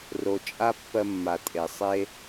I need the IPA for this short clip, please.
ro˨t͡ʃʼa˦ pːɜ˧mːa˨tʼe˨ sˤe˧

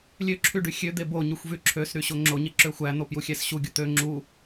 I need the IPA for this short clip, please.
lʲøǁʰy ɖyxʲød̪e boɲyxʷ vyǁʰøsɾy ɕoŋ͡ǁoɲe ǁøxʷæn̪o pjuxʲæsɕuɡʲo t̪ø ŋ͡ǁu

